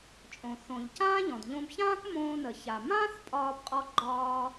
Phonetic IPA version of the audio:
t͡ʃʼ õ˩ θ õ˩ ʎ c ãː˥ ʎ ɔ̃˩ d ʎ õ˧ b ç ãː˥ k m õː˧ n ə˩ ç a˩ m ãː˥ θ pʼ ɒː˧ b qʼ ɔ˧ ɡ͡ǃ ɒː˧

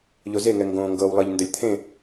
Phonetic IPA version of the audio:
ʎ o z e ŋ ɛ ŋ ɡ õː ŋ ɡ ɤ w lˠ ɤ ʎ n d ə lʲ t̪ʰ ẽ

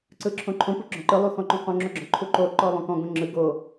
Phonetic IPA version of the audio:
ǀ ɯ ǁʰ õ ǃʰ õ p u ɡ͡ǁ ɔ̃ ǃ ɯ lˠ u x ɔ̃ ǃ ũ q õ ŋ͡ǁ o ɡ͡ǁ ɔ̃ ǃʰ u ǃ o ǃ ɔ lˠ õ k ɔ̃ ɡ õ ŋ͡ǁ ɯ ɡ o

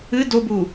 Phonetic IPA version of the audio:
ɨ d o b u

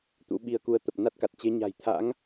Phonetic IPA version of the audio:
t̪ ṵ˧˥ ɓ i˧ ə̯ k u˧ ə̯ t̪ ə˨˩ p̚ n a˦˥ t̚ k a˨˩ t̚ t͡ɕ e˨˦ ɲ a̤˨˩ j t̪ʰ a̰˧˥ ŋ

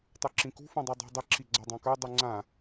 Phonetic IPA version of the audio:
tˤ u ǁ ĩ k ṳ f ũ dˤ ʉ dˤ ṳ dˤ ɪ ǁ i ɡ͡ǀ a dˤ ã k ə˞ dˤ ʉ ŋ͡ǀ ã

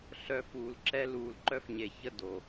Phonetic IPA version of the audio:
ɬ œ˨ f uː˨ l ǁ ɛ˦ l uː˨ l ǃ œ˦ f ɲ e˨ ç ə˦ d o˨

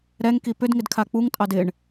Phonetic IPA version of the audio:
ɾ ɛ ŋ k i p ʏ d ŋ ɪ d kʰ a k͡p u ŋ tʼ ɑ d ɪ ɳ

